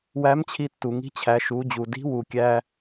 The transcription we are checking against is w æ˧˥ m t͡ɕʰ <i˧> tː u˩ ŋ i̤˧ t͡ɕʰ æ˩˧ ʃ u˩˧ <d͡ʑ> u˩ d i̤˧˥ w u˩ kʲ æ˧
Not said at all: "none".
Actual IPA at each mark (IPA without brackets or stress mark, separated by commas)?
i˧, d͡ʑ